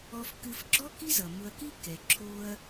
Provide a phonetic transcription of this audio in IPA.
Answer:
ɔ˧fkɨ˧fɡ͡ǁɔ˥ ki˥zʌ˩ mʊ˧ɐ̯ki˥ kɛ˩ǁʰo˧ɐ̯

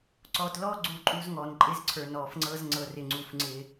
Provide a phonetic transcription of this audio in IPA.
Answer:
ǀɔ˨tlɔ˦ ɡ͡ǀu˦˨ǃʼu˦z ŋɔ˨n ǃʼɪ˦zǀʰə˞˨nɔ˨fŋ͡ǀɤ˦z ŋ͡ǀɤ˨rɪ˨ŋ͡ǀu˨fŋ͡ǀɪ˦

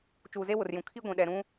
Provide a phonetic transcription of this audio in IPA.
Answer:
t͡ʃuː˨ze˦wʊ˨rjũ˨ kʰi˦ɡʷĩ˨ ɗɛ˨ɾũ˦

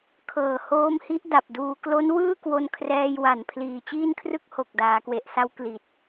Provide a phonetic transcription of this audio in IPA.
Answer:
kʰɤː˨˩hoː˦˥mhi˦˥ʔ da˨˩p̚duː˧ klo˦˥n wɯː˥˩kwo˧n kʰrɛː˧j wa˨˩n pʰliː˨˩t͡ɕiː˥˩nkʰrɯ˥˩k̚ ho˨˩k̚ daː˩˦kwe˨˩ʔsa˦˥w kli˨˩t̚

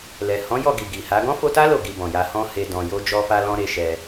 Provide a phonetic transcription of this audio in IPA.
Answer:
lɛ˨hɔ̃˨˦ jɔ˦˨ɡi˨ ɡi˨ha˨˦ ɡɔ̃˦fo˧ta˦ lo˦˨ɡi˧ bɔ̃˨ja˧ hɔ̃˦he˧ dɔ̃˨jo˧ d͡ʒɔ˦fa˦lɔ̃˦ ɾe˦ ʃɛ˧

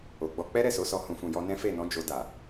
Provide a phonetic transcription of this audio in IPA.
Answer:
o˨ɡ͡bɔ˧ k͡pɛ˦ɾɛ˦˨so˨˦sɔ˧ hũ˨fũ˨jɔ˧nɛ̃˦ fe˦˨nɔ̃˨˦ d͡ʒo˧da˨

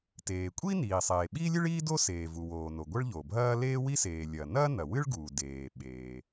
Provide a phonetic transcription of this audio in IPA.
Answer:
teː˩kʷʼi˥ niː˩sˤeː˩ ɓiː˥lʲɨ˥ɭiː˥do˥ seː˩vu˩woː˩no˩ ɡʷɐ˥ɭʎo˩bʱɐː˥ leː˥wi˥seː˩lʲɐː˩ nɐː˥nɐ˩wɨ˥ɭɡuː˩ deː˩ɓeː˩

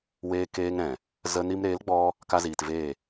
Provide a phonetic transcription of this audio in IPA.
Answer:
weː˧keː˧ŋɾɛ̃˨ | zə˧ni˧m ɾeː˨˦lɡ͡bɔ˧ | ka˧ziː˨tveː˦˨

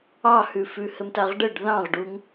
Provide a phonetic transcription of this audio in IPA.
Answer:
ɑhʉfʉ hɘmtaʁɖəɖ ðɑ̃ʁɖuŋ

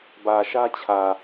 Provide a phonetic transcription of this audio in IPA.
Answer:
bä˨ʃä˦t͡ɕʰä˨

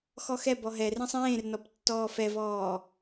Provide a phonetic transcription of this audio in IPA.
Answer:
xɔxɛ bɔɦɛrẽsˤ ẽːrnɔp tːɔːfɛvɔː

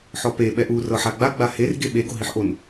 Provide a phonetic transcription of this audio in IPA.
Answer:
ħɔpe ɓɛʔu rɤħaɡ͡ba ɡ͡baher ɡeɓe ɡoɦiħʔon

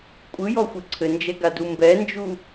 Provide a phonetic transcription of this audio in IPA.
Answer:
kʷʼɯjɔxʷɘ ǀʰɘnd͡ʒɛɡadu mbɛnd͡ʒu

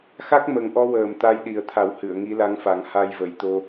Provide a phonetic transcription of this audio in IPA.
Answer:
xa˦˥k̚mə˨˩ŋʔɔ˧wəː˨˩m t̪a˧jɗi˨˩ə̯t̪ʰa˨˩˦w hɨ˨˩˨ə̯ŋi˧˥la˧˥ŋfa˨˩˦ŋ ha˧jvə˨˩˦jt̪o˧

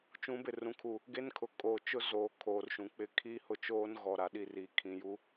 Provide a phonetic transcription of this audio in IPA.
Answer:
t͡ʃũ˨˦bɪ˨ rũ˨kʰu˨ | ɡe˦nkʰʊ˨ kʼoː˨t͡ʃʊ˦ zoː˨ kʰoː˨rʃũ˨k͡pɪ˦ kʰiː˦hʊ˦t͡ʃoː˦n ɣɔ˨ɾa˨ɗi˦˨riː˨ kʰĩ˨ju˦

